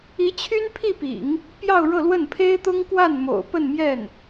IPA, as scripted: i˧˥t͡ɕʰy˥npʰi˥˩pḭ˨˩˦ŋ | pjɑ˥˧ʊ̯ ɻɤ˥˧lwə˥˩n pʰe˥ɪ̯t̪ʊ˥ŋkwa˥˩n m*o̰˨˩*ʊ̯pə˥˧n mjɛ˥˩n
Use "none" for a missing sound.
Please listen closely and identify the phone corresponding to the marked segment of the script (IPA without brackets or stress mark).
o̰˨˩